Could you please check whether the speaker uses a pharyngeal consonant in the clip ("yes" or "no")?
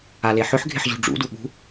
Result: yes